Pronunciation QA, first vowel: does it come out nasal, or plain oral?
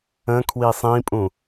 nasal